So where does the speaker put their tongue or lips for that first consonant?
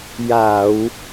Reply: palate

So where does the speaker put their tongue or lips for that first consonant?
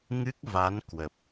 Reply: velum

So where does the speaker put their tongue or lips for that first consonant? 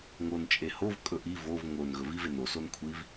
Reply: velum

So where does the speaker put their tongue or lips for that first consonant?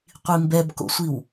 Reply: uvula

